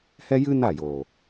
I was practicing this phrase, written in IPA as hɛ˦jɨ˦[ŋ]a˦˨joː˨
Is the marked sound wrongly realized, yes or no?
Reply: yes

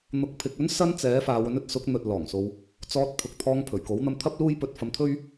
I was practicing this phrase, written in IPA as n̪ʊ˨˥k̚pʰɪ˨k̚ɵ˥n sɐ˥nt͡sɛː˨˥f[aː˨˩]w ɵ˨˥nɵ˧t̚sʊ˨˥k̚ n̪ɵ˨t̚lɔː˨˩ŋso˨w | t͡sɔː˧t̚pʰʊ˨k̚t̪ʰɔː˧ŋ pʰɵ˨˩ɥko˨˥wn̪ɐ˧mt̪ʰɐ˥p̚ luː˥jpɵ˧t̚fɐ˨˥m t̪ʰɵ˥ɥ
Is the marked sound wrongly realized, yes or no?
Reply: yes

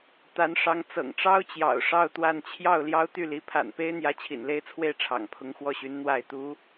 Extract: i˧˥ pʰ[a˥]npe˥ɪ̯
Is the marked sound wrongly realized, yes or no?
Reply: yes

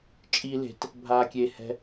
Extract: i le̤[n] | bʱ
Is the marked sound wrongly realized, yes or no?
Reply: yes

